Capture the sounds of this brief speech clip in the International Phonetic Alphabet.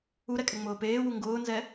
u ɾ ɛ kʼ ɛ ŋ͡m ʊː p eː w u ŋ ɡ ʊː n z ɛ

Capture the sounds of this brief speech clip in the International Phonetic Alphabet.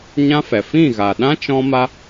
ɲ ã˦ f ɛ˨ f ĩ˦˨ ɣ a˨ ɗ ã˦ t͡ʃ ɔ̃˦ m a˦

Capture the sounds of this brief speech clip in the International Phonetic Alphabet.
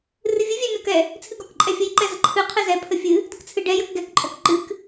r ɨ vʲ ɨ vʲ ɛ mʲ ɔ k ɛ | t͡sʰ ɨ ɡ ɔ k ǃʼ ɛ fʲ ə j ǃ ɛ z ə ǃʰ ɨ qʰ ɨ z ɛ pʰ ə fʲ ɨ | d ɨ k t͡sʰ ɨ ɖ ɛ j ə k ɡ ɛ k ǃʼ ɔ k ǃ ɨ k

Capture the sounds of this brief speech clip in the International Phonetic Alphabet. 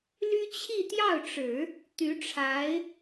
l y˥ t͡ɕʰ i˥˧ t̪ j ɑ˥˩ ʊ̯ ʈ͡ʂ ɻ̩˨˩˦ | t̪ y˧˥ ʈ͡ʂʰ a˧˥ ɪ̯

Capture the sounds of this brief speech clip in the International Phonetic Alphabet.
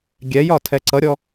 ɡʲ ɛ j ɒ tʰ ɛ ǀ ʌ ɾʲ ɔ

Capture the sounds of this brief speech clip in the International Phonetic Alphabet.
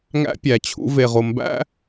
ŋ æ̰˦ pʲ æ˨ t͡ɕʰ ṵ˦ v e˧ ʁ o˧ m b æ̰˦

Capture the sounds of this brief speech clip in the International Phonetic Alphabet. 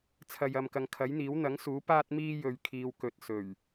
t͡sʰ ɐ˨ j ɐ˨ m k ɐ˨˧ ŋ kʰ ɐ˨˥ j n̪ iː˨˥ w n̪ ɐ˨˥ ŋ s uː˨˥ p aː˥ t̚ m iː˥ j ɵ˧ ɥ kʰ iː˧ w k ɵ˨ t̚ s ɵ˨˩ ɥ

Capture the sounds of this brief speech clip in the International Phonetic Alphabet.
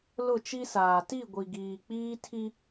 l ʊ˦˨ t͡ʃ i˦ s aː˨ t i˦˨ ɡʷ i˨ ɡ iː˨ k͡p iː˦ tʰ i˦

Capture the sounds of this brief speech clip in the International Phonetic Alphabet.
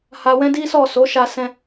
h a˧ w ɛ̃˦ d i˦ s ɔ˦˨ s o˨˦ ʃ a˧ s ɛ̃˦

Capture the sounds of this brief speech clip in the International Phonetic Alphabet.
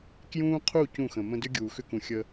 k j ũː˦ qʰ u˦˨ c ũ˦˨ x ə̃˨ m ə̃˦ d ʏ˦ ɡʲ uː˨ x ʏ˦ k ũ˨ xʲ ə˦

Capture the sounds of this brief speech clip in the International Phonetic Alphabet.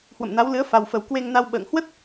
h w ə̰˧˨ m n a˨˦ w l ɨ˨˦ ə̯ f a˨˩ w f ə˨˩ w k w e˧ ŋ n a˧ w ɓ ə̰ː˧˨ ŋ h w ə˦˥ t̚

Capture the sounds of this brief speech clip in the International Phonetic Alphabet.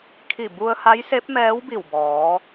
kʰ i˧˩ b u˧ ə̯ h a˧˥ j s e˧˥ p̚ m ɛː˧˥ w b i˧˩ w b ɔː˩˧

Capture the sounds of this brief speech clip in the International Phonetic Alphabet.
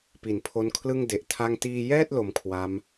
p i˩˦ n pʰ o˦˥ n kʰ l ɯ˥˩ ŋ d e˨˩ ʔ tʰ a˥˩ ŋ t iː˧ j ɛː˥˩ t̚ l o˧ m kʰ w a˦˥ m

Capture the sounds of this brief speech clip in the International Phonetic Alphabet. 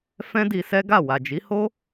f ɛ̃˦ d i˧ s ɛ˦ ɡ a˦˨ w a˨ d͡ʒ i˨˦ h o˦

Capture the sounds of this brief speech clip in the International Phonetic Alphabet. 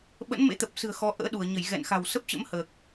ɓ ə̰˧˥ n m ḛ˧˥ t̪ ə˨˩ p̚ s ɨ̤˨˩ ə̯ x ɔ˨˦ ʔ ə̰ː˧˥ ɗ u˧˩ ə̯ ɲ ə˧˩ j ɣ ɛ̰˧˨ n x a̤˨˩ w s ə˦˥ p̚ t͡ɕ ə̰˧˥ m h əː˨˩ k̚

